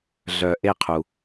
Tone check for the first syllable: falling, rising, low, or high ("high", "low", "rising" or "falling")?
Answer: low